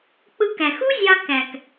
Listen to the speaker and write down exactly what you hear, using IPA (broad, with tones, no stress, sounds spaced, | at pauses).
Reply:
k͡p ɯ˧ k æ˨ x u˦ zʲ ɑ˧ k æ˨ k